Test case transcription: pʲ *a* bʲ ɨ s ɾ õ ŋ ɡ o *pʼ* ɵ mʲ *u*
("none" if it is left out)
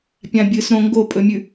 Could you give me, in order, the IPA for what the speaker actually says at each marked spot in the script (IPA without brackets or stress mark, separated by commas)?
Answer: ã, pʼ, ʉ